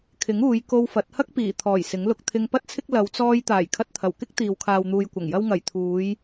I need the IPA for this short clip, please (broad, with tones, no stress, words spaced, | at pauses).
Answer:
kʰɪ˨˥ŋuː˨˧j ko˧wfɐ˨˥t̚ hɐ˥k̚ piː˨˩t̪ʰɔː˨˩j sɪ˨˥ŋlʊ˧k̚ t̪ʰɪ˧ŋpɐ˥t̚t͡sʰɪ˥k̚ lɐ˨˧wt͡sɔː˧j t̪aː˨˩jkʰɐ˧t̚t̪ʰɐ˨˩wkɪ˥k̚ t̪iː˨w kʰaː˨wn̪uː˨jkʷɐ˨˩ŋjɐ˧w ŋɐ˨˩jt̪ʰuː˨˧j